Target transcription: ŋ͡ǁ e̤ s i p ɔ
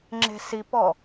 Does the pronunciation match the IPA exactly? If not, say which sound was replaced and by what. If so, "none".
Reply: none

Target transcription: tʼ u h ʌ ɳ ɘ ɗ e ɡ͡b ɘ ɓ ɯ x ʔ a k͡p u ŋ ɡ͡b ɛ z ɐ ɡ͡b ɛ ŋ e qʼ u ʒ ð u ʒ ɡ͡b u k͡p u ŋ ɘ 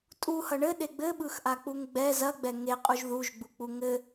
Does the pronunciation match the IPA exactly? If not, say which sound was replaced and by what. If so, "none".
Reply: none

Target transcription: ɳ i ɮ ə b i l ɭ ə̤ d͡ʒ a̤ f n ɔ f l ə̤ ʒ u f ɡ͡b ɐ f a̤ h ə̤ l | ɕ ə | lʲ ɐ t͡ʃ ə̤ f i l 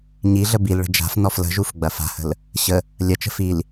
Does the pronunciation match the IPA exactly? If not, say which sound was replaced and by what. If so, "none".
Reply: ɳ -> ɲ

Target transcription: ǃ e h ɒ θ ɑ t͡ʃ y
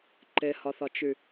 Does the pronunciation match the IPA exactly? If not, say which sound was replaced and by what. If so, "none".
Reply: ɑ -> ɒ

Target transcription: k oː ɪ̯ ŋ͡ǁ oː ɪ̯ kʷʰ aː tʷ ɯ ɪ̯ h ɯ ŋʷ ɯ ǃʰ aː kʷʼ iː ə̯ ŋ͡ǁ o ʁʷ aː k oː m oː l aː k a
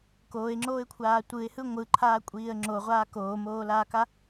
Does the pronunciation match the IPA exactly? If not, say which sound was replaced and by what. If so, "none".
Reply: none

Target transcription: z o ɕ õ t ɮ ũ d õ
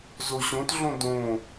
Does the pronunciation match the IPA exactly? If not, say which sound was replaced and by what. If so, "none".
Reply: ũ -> õ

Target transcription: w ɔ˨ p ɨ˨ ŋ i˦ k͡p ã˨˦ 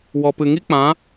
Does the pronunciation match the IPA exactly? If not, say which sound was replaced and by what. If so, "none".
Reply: none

